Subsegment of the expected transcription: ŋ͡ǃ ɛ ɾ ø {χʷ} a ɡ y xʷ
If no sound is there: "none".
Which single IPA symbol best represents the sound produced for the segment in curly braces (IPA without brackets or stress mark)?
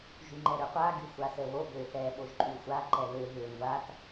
qʷ